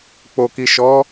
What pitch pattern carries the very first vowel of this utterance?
low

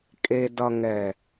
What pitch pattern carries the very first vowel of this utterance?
low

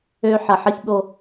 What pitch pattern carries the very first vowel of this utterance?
high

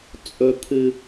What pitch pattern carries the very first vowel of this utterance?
low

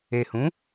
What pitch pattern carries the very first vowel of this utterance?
low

